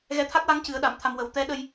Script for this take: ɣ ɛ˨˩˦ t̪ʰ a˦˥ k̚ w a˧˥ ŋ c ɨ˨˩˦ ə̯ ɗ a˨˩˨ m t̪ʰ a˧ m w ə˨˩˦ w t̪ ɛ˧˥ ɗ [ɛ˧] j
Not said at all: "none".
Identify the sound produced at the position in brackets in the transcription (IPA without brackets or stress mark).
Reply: ə˧